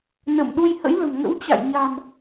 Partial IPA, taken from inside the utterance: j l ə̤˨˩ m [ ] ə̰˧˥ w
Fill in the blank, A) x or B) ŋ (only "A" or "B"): B